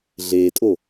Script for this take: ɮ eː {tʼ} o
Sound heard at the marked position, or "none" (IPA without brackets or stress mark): tʼ